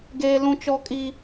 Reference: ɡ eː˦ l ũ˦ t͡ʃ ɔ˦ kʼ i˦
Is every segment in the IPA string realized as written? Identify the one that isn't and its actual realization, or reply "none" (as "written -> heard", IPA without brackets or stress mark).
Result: none